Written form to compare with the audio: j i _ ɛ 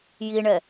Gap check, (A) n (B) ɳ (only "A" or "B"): B